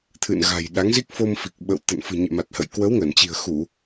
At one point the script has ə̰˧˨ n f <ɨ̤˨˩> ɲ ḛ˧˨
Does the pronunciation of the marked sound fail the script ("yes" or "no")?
no